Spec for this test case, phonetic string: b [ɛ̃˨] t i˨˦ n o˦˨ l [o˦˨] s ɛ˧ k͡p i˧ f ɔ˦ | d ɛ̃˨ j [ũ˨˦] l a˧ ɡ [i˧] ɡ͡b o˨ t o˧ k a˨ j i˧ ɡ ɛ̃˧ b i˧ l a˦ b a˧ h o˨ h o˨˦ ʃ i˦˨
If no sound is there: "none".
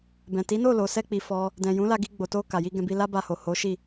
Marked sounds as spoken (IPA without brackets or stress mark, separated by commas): ɛ̃˨, o˨, ũ˨˦, i˧